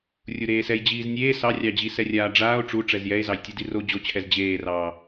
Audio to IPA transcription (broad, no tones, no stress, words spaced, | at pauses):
rʲuɾeːsɛj d͡ʑiːznʲeː sɑrʲɑd͡ʑisɛ rʲaːɖ͡ʐaːo̯ ʈ͡ʂu ʈ͡ʂɛzjɛe̯zɑj tʲɘdiro d͡ʑot͡ɕʰɛz d͡ʑeːrɑː